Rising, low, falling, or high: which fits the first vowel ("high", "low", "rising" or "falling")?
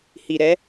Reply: low